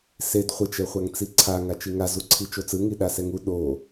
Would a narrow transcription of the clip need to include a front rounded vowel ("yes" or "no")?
no